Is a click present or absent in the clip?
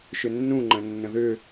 present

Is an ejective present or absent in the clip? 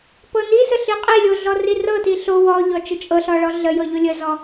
present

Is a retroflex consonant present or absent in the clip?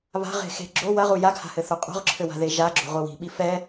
absent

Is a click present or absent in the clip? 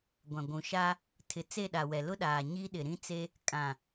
absent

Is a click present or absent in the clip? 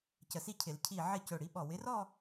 absent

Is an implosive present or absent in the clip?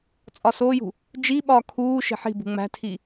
present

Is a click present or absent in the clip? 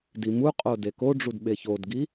absent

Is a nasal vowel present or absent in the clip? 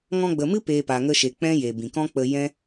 present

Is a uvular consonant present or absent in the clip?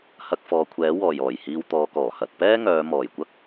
absent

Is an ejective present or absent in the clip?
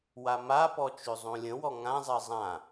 absent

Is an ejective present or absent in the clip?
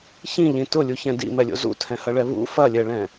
absent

